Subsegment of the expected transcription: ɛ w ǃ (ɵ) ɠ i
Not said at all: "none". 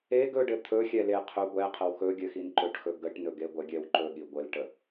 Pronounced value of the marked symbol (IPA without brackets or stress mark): ɵ